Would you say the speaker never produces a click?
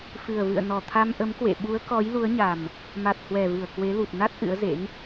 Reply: yes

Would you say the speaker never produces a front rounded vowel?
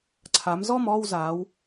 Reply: yes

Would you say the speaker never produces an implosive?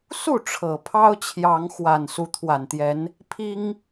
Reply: yes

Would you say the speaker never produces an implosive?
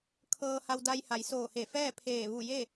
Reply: yes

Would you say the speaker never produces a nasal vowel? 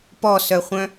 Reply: no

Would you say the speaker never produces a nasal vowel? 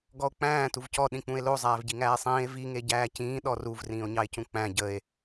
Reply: no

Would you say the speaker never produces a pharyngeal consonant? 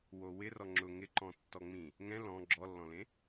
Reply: yes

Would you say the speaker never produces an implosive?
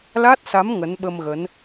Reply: no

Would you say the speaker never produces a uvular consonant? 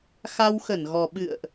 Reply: yes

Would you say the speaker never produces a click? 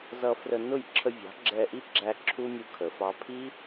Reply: no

